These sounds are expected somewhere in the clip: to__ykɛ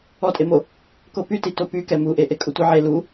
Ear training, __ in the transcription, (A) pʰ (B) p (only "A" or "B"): B